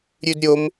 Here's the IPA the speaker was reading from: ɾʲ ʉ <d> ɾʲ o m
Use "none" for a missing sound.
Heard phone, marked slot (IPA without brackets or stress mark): d